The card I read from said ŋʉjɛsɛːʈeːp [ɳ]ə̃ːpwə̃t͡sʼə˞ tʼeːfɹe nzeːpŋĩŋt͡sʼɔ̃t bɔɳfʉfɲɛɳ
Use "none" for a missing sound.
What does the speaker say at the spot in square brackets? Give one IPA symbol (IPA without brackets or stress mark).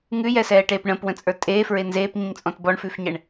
ɳ